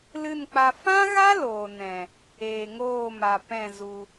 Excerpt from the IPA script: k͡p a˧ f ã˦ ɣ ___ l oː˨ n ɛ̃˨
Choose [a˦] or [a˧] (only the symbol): a˦